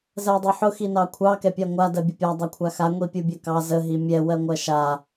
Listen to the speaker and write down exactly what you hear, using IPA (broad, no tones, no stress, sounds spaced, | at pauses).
z ɜ dˤ ʊ ħ ʊ x i n ɑ kʷʰ ɑ k ɛ pʲ a ŋʷ a d ɜ bʲ ə pʲ a dˤ ɜ kʷʰ a x a ŋʷ i pʲ u bʲ ɜ k ɑ z ə ɦ i mʲ ɛ w ɜ ŋʷ ɜ ʃ a